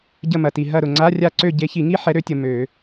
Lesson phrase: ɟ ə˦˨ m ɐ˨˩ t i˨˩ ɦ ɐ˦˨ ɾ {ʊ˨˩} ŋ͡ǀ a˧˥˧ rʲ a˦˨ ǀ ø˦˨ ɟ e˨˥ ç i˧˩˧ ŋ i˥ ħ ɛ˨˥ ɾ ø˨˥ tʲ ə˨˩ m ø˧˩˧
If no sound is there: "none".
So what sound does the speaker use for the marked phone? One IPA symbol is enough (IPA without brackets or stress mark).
ʊ˨˩